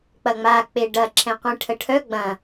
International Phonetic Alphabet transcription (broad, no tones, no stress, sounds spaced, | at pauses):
k͡p ɐ ŋ͡m a k͡p e ɖ ɐ ǁʰ ɛ̃ qʷ ɛ̃ ʈʰ ə ʈʰ œ ɡ͡b ɐ̃